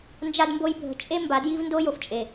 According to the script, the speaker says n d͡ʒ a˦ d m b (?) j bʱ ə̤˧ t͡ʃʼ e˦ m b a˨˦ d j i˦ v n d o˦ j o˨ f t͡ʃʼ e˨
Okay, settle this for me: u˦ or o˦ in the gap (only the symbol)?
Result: o˦